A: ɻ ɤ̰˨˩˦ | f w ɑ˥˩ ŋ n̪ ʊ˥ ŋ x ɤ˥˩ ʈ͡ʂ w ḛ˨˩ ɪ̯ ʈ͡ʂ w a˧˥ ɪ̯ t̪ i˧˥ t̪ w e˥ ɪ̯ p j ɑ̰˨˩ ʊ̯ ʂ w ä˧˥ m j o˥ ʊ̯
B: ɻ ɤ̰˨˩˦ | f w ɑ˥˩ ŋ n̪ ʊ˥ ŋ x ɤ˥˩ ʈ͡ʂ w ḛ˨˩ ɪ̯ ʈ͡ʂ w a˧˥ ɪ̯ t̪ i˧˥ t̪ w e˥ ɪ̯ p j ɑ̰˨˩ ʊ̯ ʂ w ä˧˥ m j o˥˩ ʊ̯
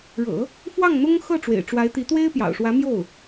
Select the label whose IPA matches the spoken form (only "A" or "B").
B